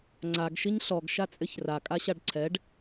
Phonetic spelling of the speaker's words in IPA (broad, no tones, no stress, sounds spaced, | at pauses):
ŋ͡ǀ a ɡ ʃ i ɲ ɬ ɔ ɡ ʃ a t͡sʼ ɪ ç r a kʼ a ɕ a ɖ ǀʰ ɛ ɖ